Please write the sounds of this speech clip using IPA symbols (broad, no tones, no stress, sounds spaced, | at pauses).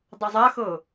dˤ ʌ zˤ a x ɤ